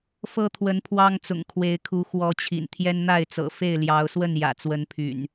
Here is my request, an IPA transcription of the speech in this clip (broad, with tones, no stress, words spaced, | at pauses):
fɤ˦t̪ʰwə˨˦n pʰwɑ˦ŋ t͡sʊ̰˨˩ŋkʰwe˨˦ɪ̯kʰu˨˦ xwɔ˨˦t͡ɕʰḭ˨˩n t̪ʰjɛ˦nn̪a˥˨ɪ̯t͡sɤ̰˨˩ fe˥˨ɪ̯ljɑ˨˦ʊ̯ swə˥˨njä̰˨˩t͡swə˨˦npʰy̰˨˩n